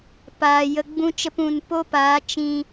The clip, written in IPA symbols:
paː˨ jə˧ɡ͡bũ˦t͡ʃə˦pũ˧n po˦paː˨˦ t͡ʃĩ˧

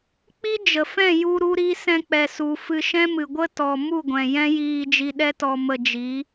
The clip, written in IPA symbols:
k͡pi˦d͡ʒə˨fɛ̃˦˨ ju˧ ɾu˦ɾi˦ sɛ̃˦k͡pɛ˧su˧ fɨ˧ʃɛ̃˦mɨ˨ ɡʷə˦ tɔ˧ mu˦˨ɡʷɛ̃˨jɛ̃˦jiː˧ d͡ʒi˧ɗɛ˦tɔ˧ mə˧d͡ʒi˨˦

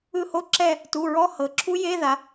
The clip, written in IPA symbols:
ɯ˦˨ho˦˥ ǁɛ˦˨ | tu˩˧˩ ɹɔ˧˥˧ hɤ˩˧ ǁʰu˦˥je˧˥˧ða˩˧

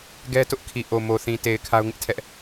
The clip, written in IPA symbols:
ɡɛ˦tʊ˦ʔkʰi˨ ʔo˨mo˨θĩ˨te˨ɪ̯ kʰa˦ʊ̯ŋɪ˦ʔtʰɛ˦ʔ

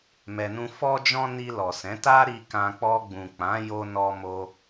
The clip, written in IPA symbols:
mɛ˧nũ˦ fɔ˦d͡ʒɔ̃˦ ni˧lɔ˨sɛ̃˨˦ta˦ ɾi˧kã˧ k͡pɔ˧ɡ͡bũ˨ k͡pã˨˦jo˧ nɔ˧mo˧

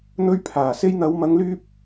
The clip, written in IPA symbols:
n̪ɵ˧ɥpʰaː˨˩ se˧jn̪ɐ˨˧wmɐ˨˧ŋlyː˧p̚

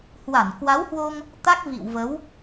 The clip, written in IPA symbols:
hwa˧˩nkwa˨˦whwo˧ŋ | t̪a˦˥k̚vḭ˧˨wvə˨˦w

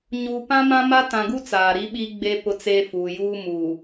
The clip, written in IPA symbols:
ɲuː˨pã˦mã˦ ma˦tã˨ɡu˦ t͡saː˨ɾi˦ɓi˦ ɡ͡be˦ pʊ˦t͡seː˦ fuː˨juː˦ muː˨

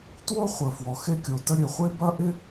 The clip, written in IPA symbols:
two˥ χʷə˩ fwɔ˩ xe˥kʲo˩tə˥ ɾʲø˩χʷe˥bɐ˥ʔɪ˥

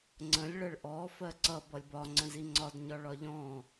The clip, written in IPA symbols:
ŋ͡ǀə̃lʲ ɭəɭʔɔ fɜǀʌ bʌlʲbɒ ŋ͡ǀə̃ziŋ͡ǀɒd ɲɒɭɒʎɔ̃

